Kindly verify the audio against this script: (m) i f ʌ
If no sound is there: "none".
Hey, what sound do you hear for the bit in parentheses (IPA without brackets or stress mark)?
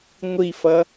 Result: ŋʷ